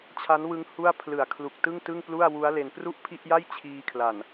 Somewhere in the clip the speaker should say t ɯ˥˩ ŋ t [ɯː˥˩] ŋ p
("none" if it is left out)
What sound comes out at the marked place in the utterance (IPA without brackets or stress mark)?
ɯ˥˩